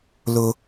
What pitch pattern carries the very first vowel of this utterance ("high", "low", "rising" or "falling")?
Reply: high